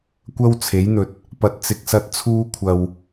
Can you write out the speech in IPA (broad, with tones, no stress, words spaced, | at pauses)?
kʷɐ˥wt͡sʰe˨˥jn̪ɵ˨t̚ | pɐ˨t̚t͡sɪ˨k̚sɐ˧t̚ t͡sʰuː˥kʷʰɐ˧w